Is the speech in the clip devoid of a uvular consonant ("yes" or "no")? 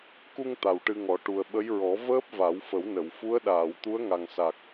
yes